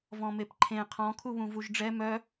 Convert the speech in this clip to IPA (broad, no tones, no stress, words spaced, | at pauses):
vɔ̃mepǃʰẽ qʰɔ̃ kʰuβũvuʒɖ͡ʐɛ mœ